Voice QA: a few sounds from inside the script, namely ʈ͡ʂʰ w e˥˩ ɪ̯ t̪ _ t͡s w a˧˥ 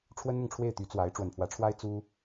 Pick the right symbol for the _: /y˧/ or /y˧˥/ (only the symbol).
y˧˥